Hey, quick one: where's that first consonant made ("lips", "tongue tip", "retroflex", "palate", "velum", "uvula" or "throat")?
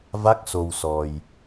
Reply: lips